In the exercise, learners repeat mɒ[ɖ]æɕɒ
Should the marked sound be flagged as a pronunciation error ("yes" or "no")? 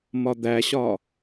yes